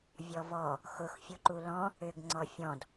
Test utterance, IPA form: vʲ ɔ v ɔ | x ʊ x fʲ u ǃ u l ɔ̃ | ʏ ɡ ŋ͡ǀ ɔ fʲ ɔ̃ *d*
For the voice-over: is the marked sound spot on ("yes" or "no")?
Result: yes